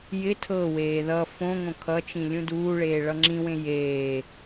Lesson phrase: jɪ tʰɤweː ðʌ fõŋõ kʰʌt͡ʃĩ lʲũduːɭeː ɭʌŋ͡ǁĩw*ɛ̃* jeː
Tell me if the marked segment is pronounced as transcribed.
no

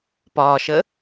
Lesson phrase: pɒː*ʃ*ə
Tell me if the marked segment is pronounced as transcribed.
yes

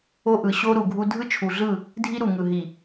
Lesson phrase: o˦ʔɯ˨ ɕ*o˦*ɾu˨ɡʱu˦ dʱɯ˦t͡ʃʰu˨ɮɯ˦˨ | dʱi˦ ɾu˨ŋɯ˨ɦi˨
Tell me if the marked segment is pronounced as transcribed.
yes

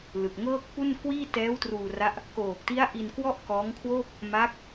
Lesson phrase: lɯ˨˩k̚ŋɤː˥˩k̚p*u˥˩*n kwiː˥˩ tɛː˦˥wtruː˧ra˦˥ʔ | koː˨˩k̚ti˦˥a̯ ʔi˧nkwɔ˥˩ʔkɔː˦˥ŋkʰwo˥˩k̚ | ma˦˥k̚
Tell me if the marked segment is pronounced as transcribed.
yes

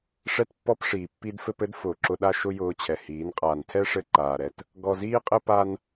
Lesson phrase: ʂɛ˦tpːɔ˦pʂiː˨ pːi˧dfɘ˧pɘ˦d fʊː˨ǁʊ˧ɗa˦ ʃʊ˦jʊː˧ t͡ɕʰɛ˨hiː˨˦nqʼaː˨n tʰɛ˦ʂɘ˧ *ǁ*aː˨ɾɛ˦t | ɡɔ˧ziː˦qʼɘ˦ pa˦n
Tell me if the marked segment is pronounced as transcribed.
no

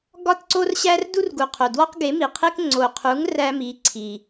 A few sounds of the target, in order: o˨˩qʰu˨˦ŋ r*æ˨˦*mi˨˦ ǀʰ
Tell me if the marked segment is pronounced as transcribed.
no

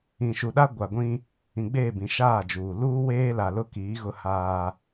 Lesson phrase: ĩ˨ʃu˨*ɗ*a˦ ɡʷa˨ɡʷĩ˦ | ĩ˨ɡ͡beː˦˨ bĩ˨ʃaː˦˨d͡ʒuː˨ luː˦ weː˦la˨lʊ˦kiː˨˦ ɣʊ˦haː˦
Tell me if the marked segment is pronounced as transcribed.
yes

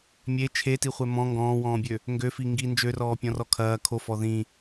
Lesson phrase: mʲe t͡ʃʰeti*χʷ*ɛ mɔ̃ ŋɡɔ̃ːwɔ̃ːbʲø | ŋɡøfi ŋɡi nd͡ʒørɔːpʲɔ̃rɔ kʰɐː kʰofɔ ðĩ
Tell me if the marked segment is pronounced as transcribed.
yes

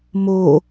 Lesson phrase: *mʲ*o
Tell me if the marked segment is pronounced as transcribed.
no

